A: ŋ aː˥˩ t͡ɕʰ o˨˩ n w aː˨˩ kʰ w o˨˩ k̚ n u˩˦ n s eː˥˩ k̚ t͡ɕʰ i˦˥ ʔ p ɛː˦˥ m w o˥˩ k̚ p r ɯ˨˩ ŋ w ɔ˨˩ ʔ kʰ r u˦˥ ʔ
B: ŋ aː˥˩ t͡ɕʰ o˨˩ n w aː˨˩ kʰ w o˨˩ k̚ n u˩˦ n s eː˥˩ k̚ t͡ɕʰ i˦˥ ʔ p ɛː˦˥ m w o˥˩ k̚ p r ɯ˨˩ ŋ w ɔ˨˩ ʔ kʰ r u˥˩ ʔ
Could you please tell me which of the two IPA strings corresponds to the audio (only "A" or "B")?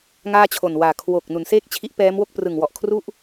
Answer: B